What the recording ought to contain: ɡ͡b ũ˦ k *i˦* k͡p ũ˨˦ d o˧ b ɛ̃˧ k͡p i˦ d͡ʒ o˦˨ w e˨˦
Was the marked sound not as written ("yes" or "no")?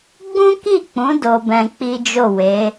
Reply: yes